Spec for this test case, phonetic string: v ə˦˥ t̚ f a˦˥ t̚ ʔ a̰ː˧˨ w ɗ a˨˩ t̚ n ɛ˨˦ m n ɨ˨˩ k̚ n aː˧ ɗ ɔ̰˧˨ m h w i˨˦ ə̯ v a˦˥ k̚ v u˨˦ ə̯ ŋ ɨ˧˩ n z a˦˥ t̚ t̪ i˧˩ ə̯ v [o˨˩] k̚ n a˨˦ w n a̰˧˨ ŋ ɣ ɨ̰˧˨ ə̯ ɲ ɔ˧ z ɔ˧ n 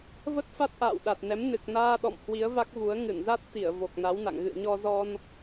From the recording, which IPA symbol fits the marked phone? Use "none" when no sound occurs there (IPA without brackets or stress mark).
o˨˩